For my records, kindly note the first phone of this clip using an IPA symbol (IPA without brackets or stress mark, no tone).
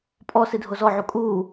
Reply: pʼ